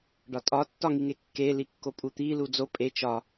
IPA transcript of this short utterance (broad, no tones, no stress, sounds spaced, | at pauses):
ɖ ɒ tʼ ɒ tː ɒ ŋ i ŋ e kː e l i kː o pʼ u t̪ i l u d͡z o pʼ e t͡ʃ ɒ